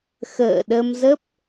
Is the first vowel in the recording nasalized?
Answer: no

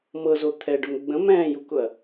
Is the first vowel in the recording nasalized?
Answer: no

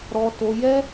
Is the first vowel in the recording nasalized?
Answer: no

